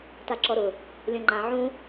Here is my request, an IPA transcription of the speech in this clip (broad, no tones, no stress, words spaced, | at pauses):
taǁɔɾʊ | lʲɔ̃ŋ͡ǃã ʕũ